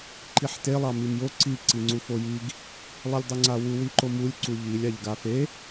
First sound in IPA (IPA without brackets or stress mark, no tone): ǃ